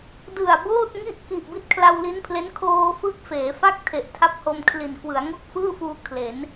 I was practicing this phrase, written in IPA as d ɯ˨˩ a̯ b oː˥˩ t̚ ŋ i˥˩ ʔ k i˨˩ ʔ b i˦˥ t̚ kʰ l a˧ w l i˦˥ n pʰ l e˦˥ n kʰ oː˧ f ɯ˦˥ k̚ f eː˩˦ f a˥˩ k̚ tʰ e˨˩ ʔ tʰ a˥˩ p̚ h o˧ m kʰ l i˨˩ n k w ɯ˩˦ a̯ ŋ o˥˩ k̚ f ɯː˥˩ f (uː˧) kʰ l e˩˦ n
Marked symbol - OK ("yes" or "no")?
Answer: yes